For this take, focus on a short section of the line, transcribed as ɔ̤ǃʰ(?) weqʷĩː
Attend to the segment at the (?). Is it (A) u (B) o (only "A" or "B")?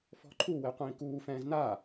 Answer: A